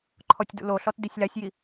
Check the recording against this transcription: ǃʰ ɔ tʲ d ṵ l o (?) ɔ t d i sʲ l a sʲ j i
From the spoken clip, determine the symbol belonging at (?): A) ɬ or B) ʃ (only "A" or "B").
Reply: A